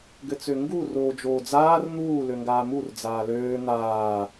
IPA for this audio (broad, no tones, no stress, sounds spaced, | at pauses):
ɡ ɘ t͡s ø ŋ ɡ u r oː d͡ʒ oː d͡z aː r n̪ uː l ø ŋ ɡ aː m u r d͡z aː l øː n̪ aː